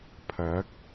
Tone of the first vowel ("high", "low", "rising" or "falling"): rising